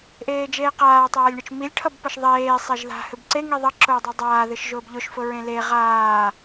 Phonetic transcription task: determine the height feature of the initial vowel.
mid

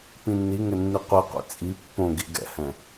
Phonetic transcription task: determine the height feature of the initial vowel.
high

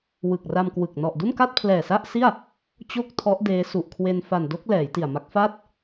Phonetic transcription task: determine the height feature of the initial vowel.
high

